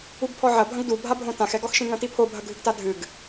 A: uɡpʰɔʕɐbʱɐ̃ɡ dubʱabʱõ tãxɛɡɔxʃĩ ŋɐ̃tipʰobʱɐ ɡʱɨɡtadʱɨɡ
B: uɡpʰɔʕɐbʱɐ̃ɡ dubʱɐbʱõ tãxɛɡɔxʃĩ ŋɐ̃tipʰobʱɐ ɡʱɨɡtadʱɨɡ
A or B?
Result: A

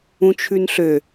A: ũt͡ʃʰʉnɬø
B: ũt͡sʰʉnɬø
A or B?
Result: A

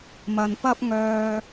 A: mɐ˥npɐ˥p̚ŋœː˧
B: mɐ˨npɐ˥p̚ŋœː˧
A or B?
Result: B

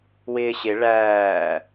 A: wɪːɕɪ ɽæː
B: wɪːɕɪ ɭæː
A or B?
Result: B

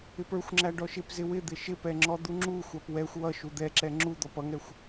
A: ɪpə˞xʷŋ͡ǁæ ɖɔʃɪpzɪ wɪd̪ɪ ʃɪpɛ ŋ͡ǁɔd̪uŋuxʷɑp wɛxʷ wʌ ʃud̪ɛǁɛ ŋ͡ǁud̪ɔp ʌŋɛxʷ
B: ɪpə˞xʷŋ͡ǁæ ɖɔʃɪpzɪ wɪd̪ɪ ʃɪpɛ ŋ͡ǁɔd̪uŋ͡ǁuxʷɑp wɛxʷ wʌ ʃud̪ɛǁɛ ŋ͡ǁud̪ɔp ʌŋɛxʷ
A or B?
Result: B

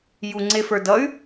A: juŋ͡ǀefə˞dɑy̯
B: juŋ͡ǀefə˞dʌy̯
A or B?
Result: B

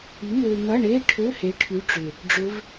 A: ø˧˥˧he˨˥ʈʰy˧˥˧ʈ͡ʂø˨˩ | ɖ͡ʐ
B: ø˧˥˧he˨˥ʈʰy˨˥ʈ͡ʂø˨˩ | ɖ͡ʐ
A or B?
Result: B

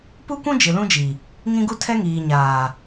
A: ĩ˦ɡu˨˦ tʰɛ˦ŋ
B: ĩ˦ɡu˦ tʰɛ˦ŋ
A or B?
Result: B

